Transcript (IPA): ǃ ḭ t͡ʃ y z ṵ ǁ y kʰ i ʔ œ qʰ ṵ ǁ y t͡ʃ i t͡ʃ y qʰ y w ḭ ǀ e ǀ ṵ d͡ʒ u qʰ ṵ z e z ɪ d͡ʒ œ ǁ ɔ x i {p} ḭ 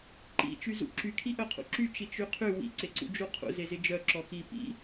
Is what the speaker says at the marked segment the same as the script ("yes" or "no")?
yes